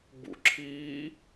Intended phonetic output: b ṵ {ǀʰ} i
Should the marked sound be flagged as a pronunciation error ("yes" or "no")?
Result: yes